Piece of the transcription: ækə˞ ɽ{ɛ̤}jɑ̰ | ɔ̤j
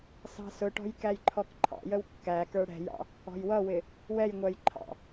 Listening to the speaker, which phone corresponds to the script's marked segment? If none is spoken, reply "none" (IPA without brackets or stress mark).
ɛ̤